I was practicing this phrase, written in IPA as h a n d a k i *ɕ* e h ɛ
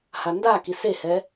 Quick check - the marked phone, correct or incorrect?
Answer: incorrect